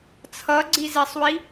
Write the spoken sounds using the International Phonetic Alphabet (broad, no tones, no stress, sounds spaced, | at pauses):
t͡sʰ ʌ ɡ͡ǀ i z e sˤ w i